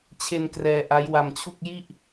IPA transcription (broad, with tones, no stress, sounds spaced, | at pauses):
t͡ɕʰ e˧ n k r ɛː˧ ʔ a˦˥ j w a˧ m t͡ɕʰ u˥˩ k̚ j i˥˩ ʔ